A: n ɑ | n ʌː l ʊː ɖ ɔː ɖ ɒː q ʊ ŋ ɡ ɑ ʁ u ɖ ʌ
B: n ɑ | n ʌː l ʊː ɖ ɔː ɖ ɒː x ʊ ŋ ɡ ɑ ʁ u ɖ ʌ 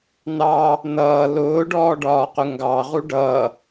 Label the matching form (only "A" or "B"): A